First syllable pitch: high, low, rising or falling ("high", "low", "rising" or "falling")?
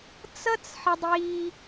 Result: high